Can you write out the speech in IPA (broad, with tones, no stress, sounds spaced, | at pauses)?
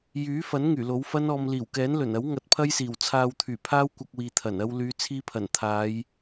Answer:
j yː˨˥ f ɐ˨˥ n ŋ yː˨˩ l o˨˥ w f ɐ˥ n ɔː˧ m l iː˨˩ w k ɛː˨˥ n l ɵ˨˩ n ɐ˨˥ w ŋ ɐ˨˥ t̚ pʰ ɐ˥ j s iː˨˩ w t͡sʰ aː˧ w t̪ʰ yː˨˩ pʰ aː˥ w kʷ ɐ˧ k̚ w iː˨ t̪ʰ ɐ˨˩ n ɐ˧ w l yː˨˧ t͡sʰ iː˧ pʰ ɐ˨˩ n t̪ʰ aː˨˧ j